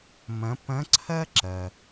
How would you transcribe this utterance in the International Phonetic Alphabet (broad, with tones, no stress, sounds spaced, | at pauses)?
m ɐ̃˩˧ p ɐ̃˧˥ ǀʰ ɐ˥ ǁ ɐ˩